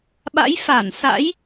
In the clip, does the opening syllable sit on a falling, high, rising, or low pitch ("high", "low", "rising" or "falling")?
rising